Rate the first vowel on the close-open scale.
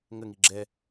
mid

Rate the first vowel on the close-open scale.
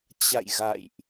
open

